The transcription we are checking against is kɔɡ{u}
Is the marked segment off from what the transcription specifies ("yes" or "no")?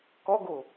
yes